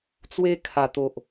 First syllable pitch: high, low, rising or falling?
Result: high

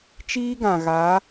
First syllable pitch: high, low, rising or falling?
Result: high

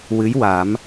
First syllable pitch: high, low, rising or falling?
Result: rising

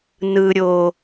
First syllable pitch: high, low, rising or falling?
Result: low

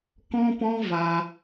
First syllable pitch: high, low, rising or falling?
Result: high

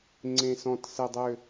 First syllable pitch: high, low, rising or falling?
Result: low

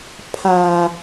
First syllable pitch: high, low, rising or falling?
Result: low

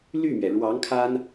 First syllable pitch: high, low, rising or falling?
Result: falling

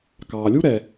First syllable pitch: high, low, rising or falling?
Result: low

